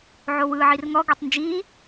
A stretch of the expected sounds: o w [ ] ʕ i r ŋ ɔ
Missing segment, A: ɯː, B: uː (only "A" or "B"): A